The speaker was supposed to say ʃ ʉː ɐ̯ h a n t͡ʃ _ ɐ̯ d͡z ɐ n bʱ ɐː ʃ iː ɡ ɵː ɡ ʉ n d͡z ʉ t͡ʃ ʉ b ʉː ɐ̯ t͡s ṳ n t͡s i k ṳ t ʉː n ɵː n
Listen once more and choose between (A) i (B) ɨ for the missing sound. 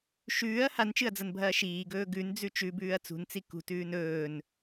B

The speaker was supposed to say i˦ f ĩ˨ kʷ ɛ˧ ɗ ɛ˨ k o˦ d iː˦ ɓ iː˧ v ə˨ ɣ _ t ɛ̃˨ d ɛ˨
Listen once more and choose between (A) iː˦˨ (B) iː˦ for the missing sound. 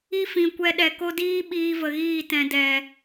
A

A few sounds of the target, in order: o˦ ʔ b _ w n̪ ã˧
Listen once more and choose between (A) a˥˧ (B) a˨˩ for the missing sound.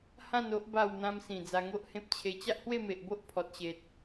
A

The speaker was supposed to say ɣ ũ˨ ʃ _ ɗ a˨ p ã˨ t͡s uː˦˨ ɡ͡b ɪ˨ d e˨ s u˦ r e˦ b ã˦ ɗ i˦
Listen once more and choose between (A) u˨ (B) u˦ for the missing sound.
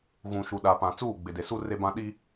A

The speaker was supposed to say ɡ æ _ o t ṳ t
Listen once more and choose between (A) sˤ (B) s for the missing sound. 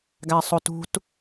A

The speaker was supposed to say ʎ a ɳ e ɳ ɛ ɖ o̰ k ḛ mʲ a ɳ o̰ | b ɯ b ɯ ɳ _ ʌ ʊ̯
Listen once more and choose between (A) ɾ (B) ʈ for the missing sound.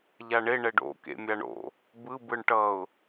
B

